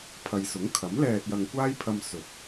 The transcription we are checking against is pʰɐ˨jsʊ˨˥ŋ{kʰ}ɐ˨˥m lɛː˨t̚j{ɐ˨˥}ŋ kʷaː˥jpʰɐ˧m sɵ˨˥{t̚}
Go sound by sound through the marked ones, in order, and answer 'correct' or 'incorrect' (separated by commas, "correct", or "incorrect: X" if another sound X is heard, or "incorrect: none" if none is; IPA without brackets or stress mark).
correct, incorrect: ɐ˨, correct